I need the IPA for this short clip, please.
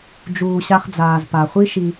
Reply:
d͡ʒ uː˩ ɕ a˨ χ d͡z aː˩ z p a˩ χʷ i˦ ʃ i˨

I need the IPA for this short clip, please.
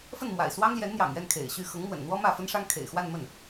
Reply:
f ə˥˩ n m w a̰˨˩ ɪ̯ s w ɑ˥ ŋ l j ɛ˧˥ n n̪ j ɑ̰˨˩ ŋ ɥ ɛ˥˩ n kʰ ḛ˨˩ ɪ̯ ɕ y˥˩ x ɤ˧˥ ŋ m w ə̰˨˩ n n̪ w ɔ˥ m ä˥˩ f ə˥ n ʂ ɑ˥ ŋ kʰ ḛ˨˩ ɪ̯ x w a˥˧ n m ə˥˩ n

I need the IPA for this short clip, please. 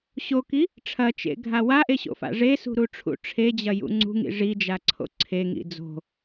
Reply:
ɕ o k i | ʈ͡ʂʰ ɐ t͡ʃ ḛ ɡʱ a w a ʔ e ɕ o̰ f a̰ ʐ e s ṳ ɾ u ʈ͡ʂʰ ṵ ʈ͡ʂʰ e d͡ʑ ɐ j ṵ ŋ͡ǀ ṳ ŋ ḭ ʐ i d͡ʒ a ǀʰ o̰ ǀʰ e ŋ ḭ d͡z o̤

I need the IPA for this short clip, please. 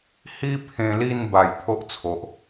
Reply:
h i˦ pʰ ẽ˧ l i˥˧ n b a˨˩ j t̪ʰ o˦ ʔ t͡sʰ o˨ ʔ

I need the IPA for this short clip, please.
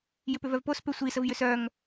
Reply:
j ʏ p ʏ v œ v p o s p ʏ sʷ i s ə v j ʏ s œ ŋ

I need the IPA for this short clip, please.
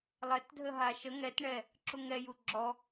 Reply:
lˠ ɛ t dʱ ə ɦ a ʃ ə ŋ ɛ t ɳ ɛ | ǁ u ŋ ɛ j u ɡ͡ǁ ɔ

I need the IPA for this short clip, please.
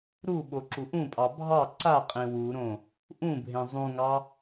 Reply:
ɾ u ɓ o ǁ u ʔ ũ pʼ ɑ bʱ ɑ ǀ a qʼ ẽ w u ɾ õ | ʔ ũ bʱ ẽ zˤ ũ ŋ ɑ

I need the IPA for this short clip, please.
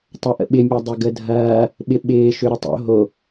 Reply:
tˤ ɐ ʔ ə̰ ɓ ɪ mʲ ɐ dˤ ɪ ɡ ə dʱ ɐː | ɓ ɪ ɓ ɪː ʃ ø ɾ ə tˤ o̰ ɦ o

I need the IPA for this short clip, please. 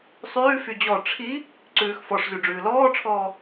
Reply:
sˤ ʉː f y d͡ʑ ɔ ʈ͡ʂʰ i | ǀ ʉː x f ɔ ʂ z y ɖ͡ʐ ʉː l ɔː ʈ͡ʂʰ ɔː

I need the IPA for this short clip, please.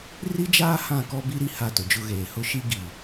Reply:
r i˦ d͡ʒ aː˦ h ã˦˨ k ɔ˦ b i˦ ɾ i˦ h a˦˨ t ʊ˨ d͡ʒ ʊ˦ ɣ eː˨ h ʊ˦ ʃ i˦ ɡ i˨

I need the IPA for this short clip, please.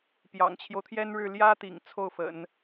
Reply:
p j ɑ̰˨˩ ŋ t͡ɕʰ j o˦ ʊ̯ t̪ʰ j ɛ˥ n ɻ ɻ̩˥˩ l j ä˥ t̪ ḭ˨˩ ŋ t͡sʰ o˥˩ ʊ̯ f ə̰˨˩˦ n

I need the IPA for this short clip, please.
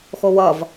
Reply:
x o w ʌ v

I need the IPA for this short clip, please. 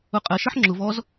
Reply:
ʊ qʼ ɜ ʃ ɜ ħ ŋ͡ǁ ʊ v ɔ z

